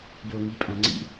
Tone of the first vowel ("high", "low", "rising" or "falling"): low